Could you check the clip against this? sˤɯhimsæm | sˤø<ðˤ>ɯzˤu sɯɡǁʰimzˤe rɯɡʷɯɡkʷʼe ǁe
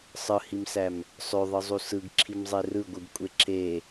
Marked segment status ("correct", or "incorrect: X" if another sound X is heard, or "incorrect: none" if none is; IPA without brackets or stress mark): correct